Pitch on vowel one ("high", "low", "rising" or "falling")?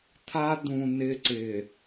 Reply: high